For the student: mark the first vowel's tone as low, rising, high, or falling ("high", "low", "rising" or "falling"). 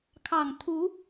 low